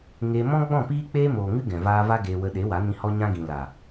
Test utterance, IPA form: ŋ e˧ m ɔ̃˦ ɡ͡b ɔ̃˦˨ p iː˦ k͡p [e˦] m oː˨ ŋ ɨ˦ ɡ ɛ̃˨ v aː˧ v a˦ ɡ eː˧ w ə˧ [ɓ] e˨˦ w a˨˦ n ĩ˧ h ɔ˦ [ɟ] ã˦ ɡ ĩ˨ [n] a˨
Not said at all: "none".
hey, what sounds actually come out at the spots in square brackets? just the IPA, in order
eː˦, ɗ, ɲ, l

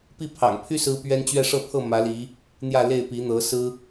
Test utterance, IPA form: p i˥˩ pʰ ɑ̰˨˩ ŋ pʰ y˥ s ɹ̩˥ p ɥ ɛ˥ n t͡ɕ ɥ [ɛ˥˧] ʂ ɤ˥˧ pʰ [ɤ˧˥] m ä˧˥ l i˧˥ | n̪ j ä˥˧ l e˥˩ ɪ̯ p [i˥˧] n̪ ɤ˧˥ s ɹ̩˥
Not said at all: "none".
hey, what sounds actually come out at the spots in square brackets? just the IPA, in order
ɛ˥˧, ɤ˥˩, i˧˥

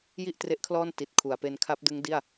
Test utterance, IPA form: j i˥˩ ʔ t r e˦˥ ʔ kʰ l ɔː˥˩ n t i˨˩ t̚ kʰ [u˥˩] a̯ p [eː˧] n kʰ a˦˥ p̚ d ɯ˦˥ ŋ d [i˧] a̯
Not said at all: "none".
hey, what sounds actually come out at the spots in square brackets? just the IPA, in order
u˩˦, e˧, i˥˩

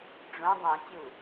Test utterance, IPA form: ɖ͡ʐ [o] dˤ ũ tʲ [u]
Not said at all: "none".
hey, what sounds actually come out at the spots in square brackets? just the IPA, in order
õ, u

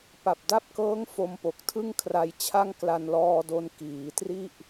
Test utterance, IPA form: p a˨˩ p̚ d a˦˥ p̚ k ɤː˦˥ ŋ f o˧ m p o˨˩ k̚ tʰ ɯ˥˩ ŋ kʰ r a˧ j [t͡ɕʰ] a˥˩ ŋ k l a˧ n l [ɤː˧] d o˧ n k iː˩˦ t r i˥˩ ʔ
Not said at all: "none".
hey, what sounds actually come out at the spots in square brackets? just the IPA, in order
t͡ɕʰ, ɔː˧

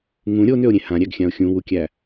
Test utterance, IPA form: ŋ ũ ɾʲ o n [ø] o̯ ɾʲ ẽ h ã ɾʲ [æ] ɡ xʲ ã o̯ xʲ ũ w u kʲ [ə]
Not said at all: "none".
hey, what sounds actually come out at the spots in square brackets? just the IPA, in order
ø, æ, æ

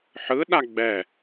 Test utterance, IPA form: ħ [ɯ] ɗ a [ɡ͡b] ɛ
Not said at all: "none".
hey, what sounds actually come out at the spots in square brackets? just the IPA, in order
ɯ, ɡ͡b

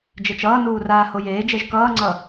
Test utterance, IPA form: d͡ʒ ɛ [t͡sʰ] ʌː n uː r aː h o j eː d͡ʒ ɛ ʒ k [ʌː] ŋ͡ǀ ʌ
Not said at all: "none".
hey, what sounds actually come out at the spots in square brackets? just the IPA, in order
t͡ʃ, ʌː

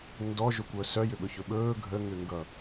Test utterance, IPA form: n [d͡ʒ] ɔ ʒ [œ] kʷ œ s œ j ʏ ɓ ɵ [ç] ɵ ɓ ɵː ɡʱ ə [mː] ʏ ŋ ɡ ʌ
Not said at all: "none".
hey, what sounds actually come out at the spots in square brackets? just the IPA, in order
d, ɵ, ç, ŋ

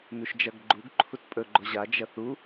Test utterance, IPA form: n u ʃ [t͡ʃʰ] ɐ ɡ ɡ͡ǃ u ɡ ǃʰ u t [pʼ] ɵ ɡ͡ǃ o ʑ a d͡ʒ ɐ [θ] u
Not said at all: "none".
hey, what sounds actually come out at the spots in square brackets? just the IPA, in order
d͡ʒ, pʼ, θ

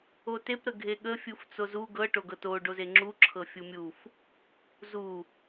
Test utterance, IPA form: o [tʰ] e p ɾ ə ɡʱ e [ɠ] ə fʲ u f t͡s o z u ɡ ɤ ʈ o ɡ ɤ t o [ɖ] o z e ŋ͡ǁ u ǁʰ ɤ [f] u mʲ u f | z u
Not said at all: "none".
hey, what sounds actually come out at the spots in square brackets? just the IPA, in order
t, ɠ, ɖ, fʲ

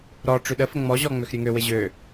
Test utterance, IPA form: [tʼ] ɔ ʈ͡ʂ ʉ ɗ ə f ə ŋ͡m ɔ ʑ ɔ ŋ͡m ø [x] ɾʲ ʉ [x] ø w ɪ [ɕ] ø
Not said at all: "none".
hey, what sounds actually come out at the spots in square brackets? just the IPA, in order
ɾ, x, ŋ, ʑ

